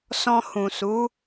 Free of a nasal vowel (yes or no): no